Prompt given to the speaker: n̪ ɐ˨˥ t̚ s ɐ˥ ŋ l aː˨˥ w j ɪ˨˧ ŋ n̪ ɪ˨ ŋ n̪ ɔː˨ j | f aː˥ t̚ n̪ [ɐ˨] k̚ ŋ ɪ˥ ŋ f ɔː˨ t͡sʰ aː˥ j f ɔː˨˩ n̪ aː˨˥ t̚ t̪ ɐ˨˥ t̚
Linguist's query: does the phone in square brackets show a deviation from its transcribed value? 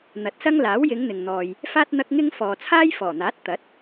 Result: yes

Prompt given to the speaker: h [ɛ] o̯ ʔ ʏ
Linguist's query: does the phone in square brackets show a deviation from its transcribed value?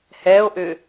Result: no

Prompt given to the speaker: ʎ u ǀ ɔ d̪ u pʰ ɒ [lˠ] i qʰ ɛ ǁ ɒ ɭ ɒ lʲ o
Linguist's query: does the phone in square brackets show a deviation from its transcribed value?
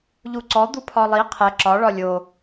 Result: no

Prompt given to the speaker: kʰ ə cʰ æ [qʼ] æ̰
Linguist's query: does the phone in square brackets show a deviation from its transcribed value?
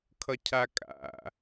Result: yes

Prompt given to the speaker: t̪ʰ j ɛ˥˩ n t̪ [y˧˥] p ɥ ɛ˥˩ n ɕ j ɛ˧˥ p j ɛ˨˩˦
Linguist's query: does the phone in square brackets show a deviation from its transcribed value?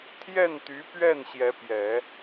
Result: no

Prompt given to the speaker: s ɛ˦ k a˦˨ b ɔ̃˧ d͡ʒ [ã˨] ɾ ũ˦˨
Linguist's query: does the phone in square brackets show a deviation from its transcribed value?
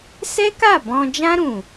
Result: yes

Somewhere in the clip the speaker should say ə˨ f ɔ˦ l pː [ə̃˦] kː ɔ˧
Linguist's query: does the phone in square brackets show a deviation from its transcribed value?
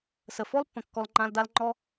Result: yes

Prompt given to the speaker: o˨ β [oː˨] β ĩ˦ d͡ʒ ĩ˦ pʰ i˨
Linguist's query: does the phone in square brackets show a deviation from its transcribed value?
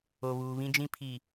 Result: yes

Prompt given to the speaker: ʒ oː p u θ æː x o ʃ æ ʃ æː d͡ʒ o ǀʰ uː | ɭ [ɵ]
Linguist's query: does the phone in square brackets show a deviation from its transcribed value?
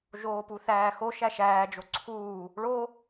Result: yes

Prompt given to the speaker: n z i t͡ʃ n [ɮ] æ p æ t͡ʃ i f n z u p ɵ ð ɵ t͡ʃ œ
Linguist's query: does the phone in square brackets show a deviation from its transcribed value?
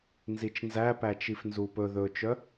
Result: yes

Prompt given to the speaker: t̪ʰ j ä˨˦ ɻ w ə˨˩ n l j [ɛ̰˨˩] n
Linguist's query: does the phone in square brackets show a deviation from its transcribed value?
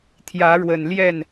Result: yes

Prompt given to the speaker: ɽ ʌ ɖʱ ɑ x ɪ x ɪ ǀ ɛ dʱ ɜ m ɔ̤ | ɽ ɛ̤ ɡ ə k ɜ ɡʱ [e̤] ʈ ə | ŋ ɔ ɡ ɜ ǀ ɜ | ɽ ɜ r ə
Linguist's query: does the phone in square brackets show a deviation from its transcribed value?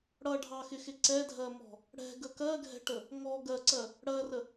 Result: yes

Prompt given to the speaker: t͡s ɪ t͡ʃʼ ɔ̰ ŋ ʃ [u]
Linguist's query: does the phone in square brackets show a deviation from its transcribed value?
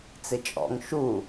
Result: no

